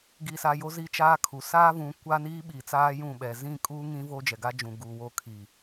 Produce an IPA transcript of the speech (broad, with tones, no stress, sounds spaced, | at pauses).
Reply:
ɡ i˨ s a˨ j o˦ z i˦ t͡ʃ aː˦ kʰ u˨ s aː˦ v ũ˨˦ kʷ a˦ n iː˦ ɓ iː˨ t͡s aː˦ j ũ˦˨ ɓ ɛ˨ z ĩ˦˨ kʼ uː˦ ŋ ĩ˦ v oː˦ d͡ʒ ɛ˨ ɡ a˦ d͡ʒ ũ˨ ɡ uː˨ w o˦˨ kʰ iː˨